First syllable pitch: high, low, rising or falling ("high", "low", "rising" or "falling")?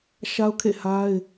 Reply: high